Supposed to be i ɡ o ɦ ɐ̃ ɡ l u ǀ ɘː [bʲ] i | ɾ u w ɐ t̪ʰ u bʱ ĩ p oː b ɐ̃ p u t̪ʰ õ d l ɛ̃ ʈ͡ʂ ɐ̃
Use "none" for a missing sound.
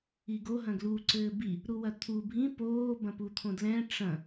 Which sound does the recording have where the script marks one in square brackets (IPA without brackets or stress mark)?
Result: b